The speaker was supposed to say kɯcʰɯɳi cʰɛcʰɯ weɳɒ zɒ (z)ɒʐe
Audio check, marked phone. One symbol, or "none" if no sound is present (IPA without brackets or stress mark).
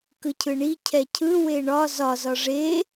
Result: z